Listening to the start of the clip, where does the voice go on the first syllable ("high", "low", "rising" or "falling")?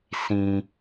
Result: low